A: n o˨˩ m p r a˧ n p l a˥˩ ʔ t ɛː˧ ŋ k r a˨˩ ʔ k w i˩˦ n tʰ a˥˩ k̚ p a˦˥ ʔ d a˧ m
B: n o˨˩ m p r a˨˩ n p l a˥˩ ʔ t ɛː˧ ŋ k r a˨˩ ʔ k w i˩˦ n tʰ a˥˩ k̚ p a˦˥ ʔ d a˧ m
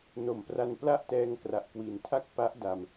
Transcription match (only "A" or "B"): A